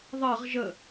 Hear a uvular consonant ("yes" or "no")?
yes